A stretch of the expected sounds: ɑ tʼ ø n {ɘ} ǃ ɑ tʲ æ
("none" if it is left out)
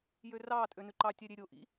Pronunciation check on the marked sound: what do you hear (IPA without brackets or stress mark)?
ʉ